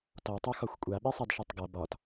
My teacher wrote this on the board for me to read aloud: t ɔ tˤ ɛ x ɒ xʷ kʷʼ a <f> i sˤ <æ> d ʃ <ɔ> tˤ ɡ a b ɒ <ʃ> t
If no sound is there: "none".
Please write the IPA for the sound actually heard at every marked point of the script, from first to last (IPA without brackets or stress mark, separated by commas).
ɓ, a, ɔ, none